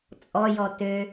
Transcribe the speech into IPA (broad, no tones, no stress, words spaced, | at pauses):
t͡sʼɔjɔ tø